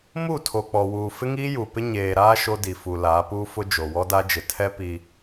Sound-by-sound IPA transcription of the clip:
m u˦˨ tʰ o˨ k͡p ɔ˨ w uː˨ f ɪ˦ ŋ iː˦ j u˨ p ɪ˦ ɲ eː˨ ɾ aː˦ ʃ o˦ d i˨ f u˨ l aː˨˦ p uː˦ f ʊ˦ d͡ʒ o˨ w ɔ˦ d a˦ d͡ʒ ɪ˨ tʰ ɛ˦ p i˦

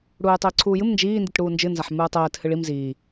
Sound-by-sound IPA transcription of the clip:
ɽ uː j tˤ iː ǀʰ uː j ɨ m n d͡ʒ iː n d i t ɽ uː n d͡ʒ ɨ n z a ħ m ɨː tˤ ɛː t h ɨ ɭ i m z iː

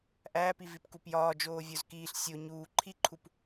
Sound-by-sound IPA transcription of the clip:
ʔ æː p i v i p k u p j ɒː d͡ʒ oː vʲ o z k iː ɬ sʲ o ɲ uː ǃʰ i ǃʰ u p

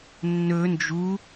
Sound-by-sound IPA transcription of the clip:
nː ɵ n d͡ʒ u

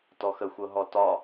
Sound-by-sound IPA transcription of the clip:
t ɔ x ə xʷ ɤ ɦ ɔ t ɒ

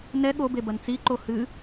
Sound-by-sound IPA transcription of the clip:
n ɛ ɠ o b e b ɐ n t͡s i ǃ o h ɨ

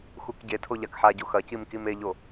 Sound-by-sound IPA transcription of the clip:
x u k ɟ e tʰ o ʎ a k ħ a ɟ o x ɐ c i m k i m e ʎ o

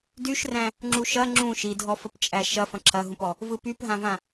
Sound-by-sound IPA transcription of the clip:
d y ʃ r æ̃ | ŋ͡ǁ u ʃ ɐ ŋ͡ǁ ũ ʃ i dʱ ɔ f ə p t͡ʃʼ æ ʃ ɐ f ɐ̃ ǁʰ ɐ ɦ ũ p ɔ | v ɯ p y p ɦ ã v ã

